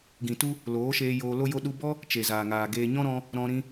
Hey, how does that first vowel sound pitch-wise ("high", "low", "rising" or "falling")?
low